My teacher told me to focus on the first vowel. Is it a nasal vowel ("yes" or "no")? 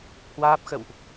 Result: no